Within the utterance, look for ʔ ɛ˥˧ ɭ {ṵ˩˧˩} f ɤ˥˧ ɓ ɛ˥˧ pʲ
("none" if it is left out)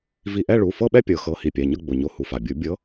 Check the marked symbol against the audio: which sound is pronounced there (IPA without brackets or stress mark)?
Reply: u˩˧˩